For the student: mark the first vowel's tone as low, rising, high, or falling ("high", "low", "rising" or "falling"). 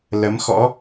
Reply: rising